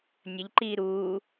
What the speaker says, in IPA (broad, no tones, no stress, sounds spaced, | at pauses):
nʲ ə ʎ ǃ iː ɾ uː